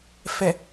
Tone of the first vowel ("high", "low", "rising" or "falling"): low